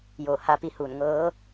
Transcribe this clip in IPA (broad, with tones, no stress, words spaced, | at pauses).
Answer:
joː˧˩ha˧pi˧huː˧˩n ŋɤː˧˥